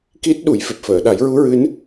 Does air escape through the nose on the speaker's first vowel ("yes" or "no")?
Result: no